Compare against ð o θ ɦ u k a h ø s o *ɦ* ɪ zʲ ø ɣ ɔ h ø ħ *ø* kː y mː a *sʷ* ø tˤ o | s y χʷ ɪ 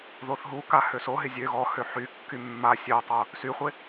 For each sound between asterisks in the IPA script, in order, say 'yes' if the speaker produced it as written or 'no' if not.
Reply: yes, no, no

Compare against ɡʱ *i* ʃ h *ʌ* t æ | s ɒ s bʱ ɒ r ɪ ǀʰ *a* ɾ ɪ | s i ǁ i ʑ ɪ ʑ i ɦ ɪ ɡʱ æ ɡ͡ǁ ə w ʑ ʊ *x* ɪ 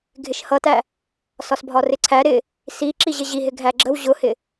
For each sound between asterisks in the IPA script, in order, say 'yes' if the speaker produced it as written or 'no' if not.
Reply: no, yes, no, no

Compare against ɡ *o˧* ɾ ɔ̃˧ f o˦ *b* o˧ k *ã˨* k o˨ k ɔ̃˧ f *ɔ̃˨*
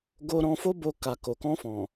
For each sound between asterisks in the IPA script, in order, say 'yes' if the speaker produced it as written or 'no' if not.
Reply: yes, yes, no, yes

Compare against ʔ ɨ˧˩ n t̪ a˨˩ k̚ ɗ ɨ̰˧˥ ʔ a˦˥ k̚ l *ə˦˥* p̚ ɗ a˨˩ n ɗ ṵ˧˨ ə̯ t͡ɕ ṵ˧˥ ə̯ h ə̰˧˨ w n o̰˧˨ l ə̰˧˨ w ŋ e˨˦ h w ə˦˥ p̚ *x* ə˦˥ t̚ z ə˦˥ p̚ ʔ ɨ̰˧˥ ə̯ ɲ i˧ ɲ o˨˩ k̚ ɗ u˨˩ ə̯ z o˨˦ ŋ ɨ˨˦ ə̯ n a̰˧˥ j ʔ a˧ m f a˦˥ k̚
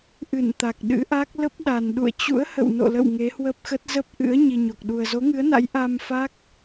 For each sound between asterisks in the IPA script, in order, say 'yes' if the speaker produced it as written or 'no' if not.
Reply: yes, yes

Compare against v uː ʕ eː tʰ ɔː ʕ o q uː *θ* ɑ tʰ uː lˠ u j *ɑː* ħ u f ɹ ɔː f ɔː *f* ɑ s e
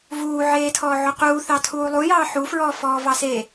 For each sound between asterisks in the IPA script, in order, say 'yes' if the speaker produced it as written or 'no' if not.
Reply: yes, yes, no

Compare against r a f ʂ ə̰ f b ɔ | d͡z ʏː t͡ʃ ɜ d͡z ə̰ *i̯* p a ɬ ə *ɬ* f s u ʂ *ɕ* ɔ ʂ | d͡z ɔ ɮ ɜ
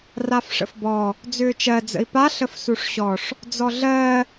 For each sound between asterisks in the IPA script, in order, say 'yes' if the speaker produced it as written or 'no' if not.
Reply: yes, no, yes

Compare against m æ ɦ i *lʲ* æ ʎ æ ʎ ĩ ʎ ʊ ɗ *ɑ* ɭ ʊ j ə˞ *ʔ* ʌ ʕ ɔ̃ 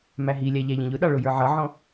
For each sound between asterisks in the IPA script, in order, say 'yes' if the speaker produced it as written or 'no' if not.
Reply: yes, yes, no

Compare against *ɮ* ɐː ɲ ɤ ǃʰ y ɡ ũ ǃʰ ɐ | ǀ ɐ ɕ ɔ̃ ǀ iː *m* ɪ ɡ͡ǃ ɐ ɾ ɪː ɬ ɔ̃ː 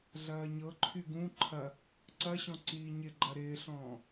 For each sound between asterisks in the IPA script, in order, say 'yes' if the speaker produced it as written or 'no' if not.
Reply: yes, no

